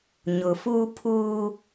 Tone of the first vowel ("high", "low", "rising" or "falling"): low